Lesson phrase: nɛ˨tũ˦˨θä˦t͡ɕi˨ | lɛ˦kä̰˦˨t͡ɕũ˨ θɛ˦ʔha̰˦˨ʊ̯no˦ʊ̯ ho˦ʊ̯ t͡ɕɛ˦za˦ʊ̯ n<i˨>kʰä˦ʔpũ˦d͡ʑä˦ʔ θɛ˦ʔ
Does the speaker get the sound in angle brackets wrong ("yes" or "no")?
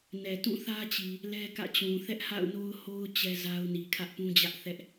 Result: no